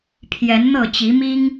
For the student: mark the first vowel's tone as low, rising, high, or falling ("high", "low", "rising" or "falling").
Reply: rising